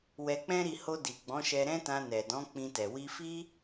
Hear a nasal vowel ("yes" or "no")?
yes